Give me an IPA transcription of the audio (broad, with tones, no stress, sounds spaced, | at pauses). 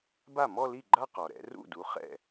b a˥˩ m ɔ˥˧ l i˥˩ ɡ͡ǃ a˥˧ q ɔ˩ ɾ ɛ̰˨˦ r ṵ˥˩ d u˨˦ χ ɛ̰˥˩